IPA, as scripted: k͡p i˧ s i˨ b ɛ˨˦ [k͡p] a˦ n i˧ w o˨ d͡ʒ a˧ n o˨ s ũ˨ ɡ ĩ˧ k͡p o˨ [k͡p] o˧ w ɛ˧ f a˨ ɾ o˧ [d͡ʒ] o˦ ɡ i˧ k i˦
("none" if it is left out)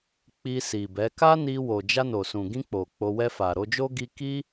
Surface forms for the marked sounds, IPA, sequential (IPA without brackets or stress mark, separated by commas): k, k͡p, d͡ʒ